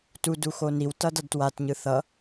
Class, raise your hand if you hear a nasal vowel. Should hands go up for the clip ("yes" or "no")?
no